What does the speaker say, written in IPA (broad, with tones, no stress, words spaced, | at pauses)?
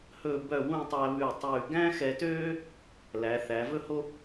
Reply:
hɵ˧˩bœ˧˩ wũ˥˧ tˤæ˧βʉ˧˩tˤʉː˧˩ ɡæ̃˥xɛ˧tøː˥ | læ˩˧θæ˩˧vɵ˥ho˥